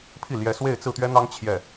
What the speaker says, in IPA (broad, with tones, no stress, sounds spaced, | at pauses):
pʰ i˥˩ l j ɛ˧˥ s w e˥˧ ɪ̯ t͡s ɹ̩˥˩ t̪ ɥ ɛ˥ n̪ ɑ˥ ŋ t͡ɕʰ j ɛ˥˩